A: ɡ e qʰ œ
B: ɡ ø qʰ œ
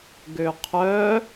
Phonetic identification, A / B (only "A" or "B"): B